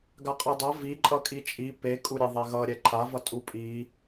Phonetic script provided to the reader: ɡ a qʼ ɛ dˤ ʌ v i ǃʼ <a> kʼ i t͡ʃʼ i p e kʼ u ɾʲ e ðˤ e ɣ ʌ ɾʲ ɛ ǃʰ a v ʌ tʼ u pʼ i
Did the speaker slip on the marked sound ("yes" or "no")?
yes